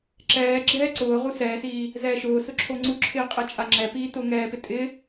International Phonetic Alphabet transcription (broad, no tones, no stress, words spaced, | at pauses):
ǁɛː ɡ͡ǁɛːǀʊːʁu sɛːsiː | zɛːʃʊːsʊ ǁʰoŋ͡ǀuǁʰɪː qʼet͡ʃʼaŋ͡ǁɛpiː tʊːŋɛːpɪ tʼɪ